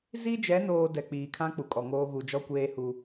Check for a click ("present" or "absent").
absent